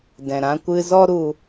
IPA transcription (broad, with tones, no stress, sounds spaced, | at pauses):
d ɛ̃˨ ɾ ã˧ kʷ ɨ˧ z ɔ˦ ɾ u˦